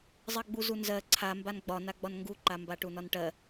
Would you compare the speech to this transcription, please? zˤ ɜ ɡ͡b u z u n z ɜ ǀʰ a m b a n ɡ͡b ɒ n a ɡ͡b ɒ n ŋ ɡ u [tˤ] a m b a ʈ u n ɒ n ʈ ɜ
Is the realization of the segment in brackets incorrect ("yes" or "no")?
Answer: yes